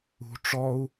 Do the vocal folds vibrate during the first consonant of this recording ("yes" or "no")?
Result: no